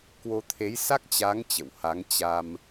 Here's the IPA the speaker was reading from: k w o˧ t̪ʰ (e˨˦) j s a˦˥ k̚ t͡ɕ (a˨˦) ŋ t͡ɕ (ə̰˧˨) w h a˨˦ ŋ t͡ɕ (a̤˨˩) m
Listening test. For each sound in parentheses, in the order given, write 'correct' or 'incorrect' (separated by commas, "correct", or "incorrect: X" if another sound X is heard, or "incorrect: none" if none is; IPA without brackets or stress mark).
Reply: correct, correct, correct, incorrect: a˧